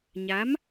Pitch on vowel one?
rising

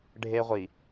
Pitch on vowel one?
high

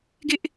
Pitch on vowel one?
high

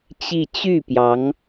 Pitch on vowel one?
falling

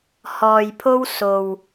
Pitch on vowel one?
low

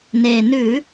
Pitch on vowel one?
low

